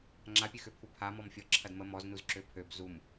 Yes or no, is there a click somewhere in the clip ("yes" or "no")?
yes